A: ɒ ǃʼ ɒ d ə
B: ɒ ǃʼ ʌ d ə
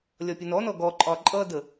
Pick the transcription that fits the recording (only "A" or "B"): B